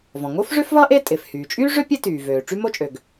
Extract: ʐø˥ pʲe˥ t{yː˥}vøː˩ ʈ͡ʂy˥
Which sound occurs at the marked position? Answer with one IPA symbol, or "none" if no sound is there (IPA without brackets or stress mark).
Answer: yː˩